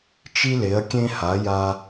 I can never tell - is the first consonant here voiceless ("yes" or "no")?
yes